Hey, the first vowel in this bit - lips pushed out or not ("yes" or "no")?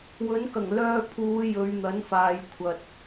yes